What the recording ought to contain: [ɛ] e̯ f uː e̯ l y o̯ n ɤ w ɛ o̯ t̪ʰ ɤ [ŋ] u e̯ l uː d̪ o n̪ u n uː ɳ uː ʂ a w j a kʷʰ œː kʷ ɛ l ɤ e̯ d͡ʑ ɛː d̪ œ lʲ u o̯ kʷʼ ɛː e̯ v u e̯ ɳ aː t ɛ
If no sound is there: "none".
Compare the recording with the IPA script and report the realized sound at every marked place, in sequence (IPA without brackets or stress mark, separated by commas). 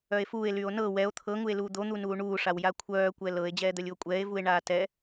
œ, ŋ